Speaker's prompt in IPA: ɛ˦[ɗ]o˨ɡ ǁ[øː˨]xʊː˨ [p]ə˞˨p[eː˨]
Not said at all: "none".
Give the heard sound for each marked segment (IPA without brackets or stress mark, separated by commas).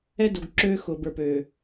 d, øː˦, b, øː˨